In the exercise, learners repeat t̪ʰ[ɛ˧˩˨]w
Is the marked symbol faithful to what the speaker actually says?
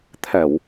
yes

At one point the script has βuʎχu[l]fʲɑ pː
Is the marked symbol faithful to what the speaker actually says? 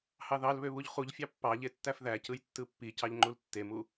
no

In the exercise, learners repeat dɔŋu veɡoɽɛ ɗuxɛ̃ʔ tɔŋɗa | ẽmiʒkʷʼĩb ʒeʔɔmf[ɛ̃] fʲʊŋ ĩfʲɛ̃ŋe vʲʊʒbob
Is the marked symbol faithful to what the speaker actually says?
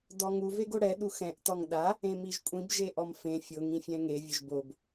no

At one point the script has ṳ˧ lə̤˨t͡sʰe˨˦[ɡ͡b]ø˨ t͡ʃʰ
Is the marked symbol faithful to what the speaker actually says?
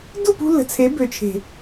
no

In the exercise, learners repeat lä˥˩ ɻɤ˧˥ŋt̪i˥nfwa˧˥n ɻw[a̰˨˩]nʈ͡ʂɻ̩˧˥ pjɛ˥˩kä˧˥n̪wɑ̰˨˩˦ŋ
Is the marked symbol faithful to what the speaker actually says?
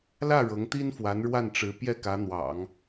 no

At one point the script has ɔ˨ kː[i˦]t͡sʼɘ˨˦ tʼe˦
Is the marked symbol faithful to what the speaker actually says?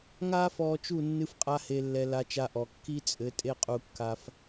yes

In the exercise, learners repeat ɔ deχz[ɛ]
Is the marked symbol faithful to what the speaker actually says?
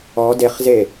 no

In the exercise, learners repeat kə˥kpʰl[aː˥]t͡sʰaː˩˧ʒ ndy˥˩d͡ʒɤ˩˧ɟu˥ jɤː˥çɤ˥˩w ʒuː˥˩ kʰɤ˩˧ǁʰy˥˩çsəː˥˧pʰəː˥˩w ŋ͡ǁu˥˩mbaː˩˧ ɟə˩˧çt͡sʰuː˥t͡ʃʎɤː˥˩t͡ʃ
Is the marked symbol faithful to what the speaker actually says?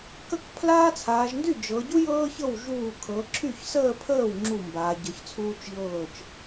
yes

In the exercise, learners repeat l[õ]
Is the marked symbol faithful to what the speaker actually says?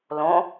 yes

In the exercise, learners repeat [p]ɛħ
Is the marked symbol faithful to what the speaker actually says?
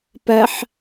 yes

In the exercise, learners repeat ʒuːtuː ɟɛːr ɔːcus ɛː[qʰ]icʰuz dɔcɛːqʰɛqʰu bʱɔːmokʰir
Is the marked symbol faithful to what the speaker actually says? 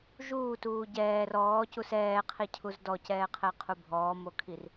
yes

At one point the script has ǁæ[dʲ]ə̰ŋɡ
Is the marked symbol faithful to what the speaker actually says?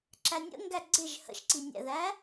no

